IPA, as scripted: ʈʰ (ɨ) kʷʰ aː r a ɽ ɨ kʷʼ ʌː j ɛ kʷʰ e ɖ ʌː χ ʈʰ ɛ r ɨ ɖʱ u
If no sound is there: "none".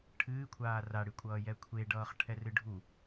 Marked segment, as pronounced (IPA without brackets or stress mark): ɨː